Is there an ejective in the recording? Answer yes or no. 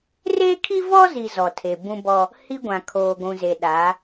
no